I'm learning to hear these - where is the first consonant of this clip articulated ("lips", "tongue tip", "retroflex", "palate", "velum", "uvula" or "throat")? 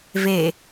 lips